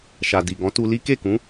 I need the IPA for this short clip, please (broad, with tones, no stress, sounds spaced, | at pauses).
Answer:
ʃ a˨ d i˨ ɡ ɔ̃˨˦ t u˧ l i˦ k e˦˨ k ũ˨˦